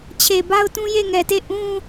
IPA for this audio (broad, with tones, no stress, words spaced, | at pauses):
t͡ɕʰe˨ba˦ʊ̯tũ˦je˦˨ ŋɛ˨te˦˨ ʔũ˦